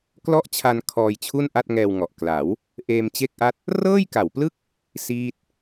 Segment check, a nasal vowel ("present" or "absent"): absent